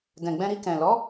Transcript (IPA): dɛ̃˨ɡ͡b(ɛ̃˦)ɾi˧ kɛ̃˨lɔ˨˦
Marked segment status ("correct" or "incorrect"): incorrect